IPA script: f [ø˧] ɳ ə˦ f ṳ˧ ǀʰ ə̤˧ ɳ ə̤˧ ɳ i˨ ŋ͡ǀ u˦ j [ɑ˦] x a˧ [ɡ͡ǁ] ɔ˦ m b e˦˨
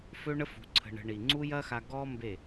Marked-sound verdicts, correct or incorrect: incorrect, incorrect, incorrect

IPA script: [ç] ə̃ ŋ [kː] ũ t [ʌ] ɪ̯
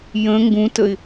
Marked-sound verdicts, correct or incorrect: incorrect, incorrect, incorrect

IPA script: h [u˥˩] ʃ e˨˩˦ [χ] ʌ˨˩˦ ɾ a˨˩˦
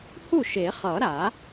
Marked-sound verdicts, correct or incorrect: correct, correct

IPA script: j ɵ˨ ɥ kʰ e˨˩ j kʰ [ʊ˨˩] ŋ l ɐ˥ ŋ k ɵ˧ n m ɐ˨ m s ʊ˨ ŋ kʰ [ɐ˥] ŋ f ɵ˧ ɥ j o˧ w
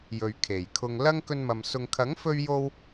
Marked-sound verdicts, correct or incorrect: incorrect, incorrect

